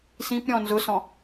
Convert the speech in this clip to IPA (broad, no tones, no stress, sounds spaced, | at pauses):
s ĩ p ɾʲ ɔ̃ n z ʊ s ɔ̃